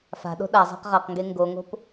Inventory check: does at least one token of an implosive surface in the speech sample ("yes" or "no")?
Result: yes